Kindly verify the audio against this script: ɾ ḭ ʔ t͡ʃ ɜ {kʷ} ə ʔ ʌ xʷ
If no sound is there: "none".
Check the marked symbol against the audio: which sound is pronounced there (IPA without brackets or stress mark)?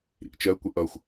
kʷ